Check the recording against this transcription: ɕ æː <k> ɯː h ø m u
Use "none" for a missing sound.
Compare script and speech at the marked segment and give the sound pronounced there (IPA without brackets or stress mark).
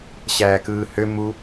k